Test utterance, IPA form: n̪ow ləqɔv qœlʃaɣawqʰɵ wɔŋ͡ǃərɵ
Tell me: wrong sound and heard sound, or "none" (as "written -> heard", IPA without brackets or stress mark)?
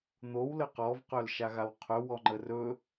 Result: none